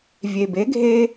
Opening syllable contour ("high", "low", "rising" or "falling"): low